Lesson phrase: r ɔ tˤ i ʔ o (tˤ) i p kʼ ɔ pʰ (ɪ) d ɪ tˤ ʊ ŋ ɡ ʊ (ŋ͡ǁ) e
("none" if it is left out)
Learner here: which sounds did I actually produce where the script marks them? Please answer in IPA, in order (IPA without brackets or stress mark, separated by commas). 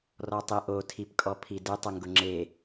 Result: tʰ, i, ŋ͡ǁ